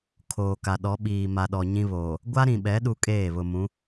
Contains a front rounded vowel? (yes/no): no